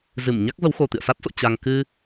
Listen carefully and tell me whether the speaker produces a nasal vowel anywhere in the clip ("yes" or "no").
no